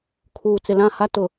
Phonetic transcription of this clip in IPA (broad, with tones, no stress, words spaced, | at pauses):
kʰuː˨t͡sɪ˨lã˦˨ha˦ tʊ˨